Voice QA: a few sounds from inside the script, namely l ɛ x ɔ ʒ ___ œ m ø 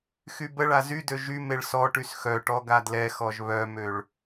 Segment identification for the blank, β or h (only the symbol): β